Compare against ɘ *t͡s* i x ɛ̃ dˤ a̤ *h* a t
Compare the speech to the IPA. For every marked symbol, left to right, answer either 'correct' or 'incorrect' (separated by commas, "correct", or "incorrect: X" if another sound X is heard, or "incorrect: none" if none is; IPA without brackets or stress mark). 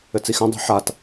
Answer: correct, incorrect: ħ